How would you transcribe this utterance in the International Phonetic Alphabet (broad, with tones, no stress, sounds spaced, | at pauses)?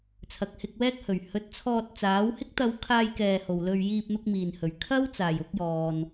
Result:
t͡sʰ ɐ˨ k̚ h ɪ˧ k̚ w ɛː˥ k̚ h ɵ˨˩ ɥ h ɵ˨˥ t̚ t͡sʰ ɔː˧ t̚ t͡s aː˨˥ w h ɪ˥ k̚ t̪ ɐ˧ w kʰ aː˧ j k ɛː˨ h o˨ w l ɵ˧ ɥ j iː˧ p̚ n̪ ʊ˥ k̚ m iː˨ n h ɵ˨ ɥ kʰ ɐ˥ w t͡s aː˨˩ j ʊ˨˥ k̚ j ɔː˨ n